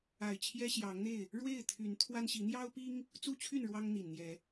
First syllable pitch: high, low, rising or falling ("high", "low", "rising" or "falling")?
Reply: low